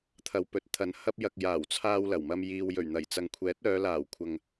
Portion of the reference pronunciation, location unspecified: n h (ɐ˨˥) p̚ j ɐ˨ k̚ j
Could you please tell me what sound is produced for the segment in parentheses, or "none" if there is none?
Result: ɐ˧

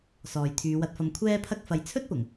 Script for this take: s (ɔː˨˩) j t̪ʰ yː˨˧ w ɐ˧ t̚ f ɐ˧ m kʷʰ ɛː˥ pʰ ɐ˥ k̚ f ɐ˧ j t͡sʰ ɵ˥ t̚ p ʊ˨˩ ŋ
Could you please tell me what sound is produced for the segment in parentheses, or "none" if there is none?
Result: ɔː˨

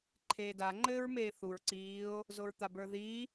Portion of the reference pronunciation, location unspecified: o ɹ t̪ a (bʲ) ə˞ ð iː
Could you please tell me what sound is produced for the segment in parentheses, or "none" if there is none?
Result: b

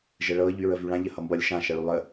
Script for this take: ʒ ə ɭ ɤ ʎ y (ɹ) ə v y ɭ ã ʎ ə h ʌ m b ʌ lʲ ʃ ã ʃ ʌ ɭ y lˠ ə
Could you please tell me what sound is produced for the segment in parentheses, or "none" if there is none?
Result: ɹ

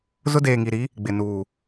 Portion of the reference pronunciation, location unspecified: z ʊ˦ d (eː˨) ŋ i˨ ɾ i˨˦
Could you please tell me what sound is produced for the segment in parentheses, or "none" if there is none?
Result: eː˨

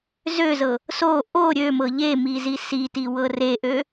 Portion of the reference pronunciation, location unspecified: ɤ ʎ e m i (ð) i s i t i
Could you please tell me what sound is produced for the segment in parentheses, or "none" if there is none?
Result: z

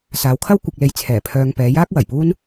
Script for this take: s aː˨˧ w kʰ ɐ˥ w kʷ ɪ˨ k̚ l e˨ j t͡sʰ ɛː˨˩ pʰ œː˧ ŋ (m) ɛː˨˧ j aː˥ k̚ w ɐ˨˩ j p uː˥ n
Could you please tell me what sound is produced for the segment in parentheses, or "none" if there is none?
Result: p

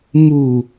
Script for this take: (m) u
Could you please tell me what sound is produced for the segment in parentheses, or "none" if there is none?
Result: m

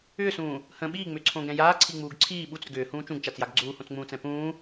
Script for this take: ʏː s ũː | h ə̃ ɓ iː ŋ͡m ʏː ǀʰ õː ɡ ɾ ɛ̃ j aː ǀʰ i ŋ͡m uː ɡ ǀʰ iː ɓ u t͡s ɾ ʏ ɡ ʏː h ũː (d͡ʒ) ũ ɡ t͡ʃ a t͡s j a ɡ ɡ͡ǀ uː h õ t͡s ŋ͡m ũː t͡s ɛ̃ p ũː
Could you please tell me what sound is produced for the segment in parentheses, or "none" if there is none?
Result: t͡ʃ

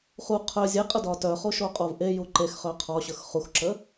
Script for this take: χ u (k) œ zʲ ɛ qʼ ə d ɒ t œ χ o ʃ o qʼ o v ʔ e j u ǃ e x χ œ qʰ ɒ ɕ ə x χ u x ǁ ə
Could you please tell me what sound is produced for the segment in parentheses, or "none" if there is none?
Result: qʰ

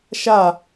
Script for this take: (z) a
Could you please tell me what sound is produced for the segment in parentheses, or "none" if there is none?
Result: ʃ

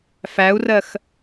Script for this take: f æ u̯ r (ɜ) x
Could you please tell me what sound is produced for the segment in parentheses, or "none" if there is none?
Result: ɜ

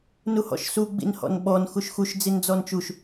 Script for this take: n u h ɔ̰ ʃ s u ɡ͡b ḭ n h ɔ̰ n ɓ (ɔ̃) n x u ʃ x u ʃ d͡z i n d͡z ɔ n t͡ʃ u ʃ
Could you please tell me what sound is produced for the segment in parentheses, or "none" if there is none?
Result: ɔ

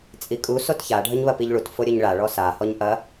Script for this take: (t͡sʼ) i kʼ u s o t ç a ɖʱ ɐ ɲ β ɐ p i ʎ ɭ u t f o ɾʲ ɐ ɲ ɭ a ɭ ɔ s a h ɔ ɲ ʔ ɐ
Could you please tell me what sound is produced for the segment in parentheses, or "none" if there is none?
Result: t͡sʼ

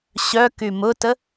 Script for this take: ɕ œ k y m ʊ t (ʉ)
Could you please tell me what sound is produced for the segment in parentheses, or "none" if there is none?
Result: ə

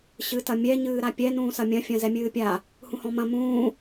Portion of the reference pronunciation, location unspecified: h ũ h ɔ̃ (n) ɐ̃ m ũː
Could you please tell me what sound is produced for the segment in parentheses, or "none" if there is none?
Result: m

